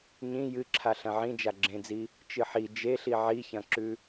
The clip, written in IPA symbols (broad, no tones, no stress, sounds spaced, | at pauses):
ɲ ĩ j ɨ ǁʰ a ɬ ɐ̃ ʕ ĩ d͡ʒ a ɡ͡ǁ ẽ d͡z i | t͡ʃ ɨ ħ i d͡ʒ e ɬ i ʕ i ç ɐ̃ ǁ ʉ